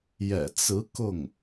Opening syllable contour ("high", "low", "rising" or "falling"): low